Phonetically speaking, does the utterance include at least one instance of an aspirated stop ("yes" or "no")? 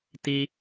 no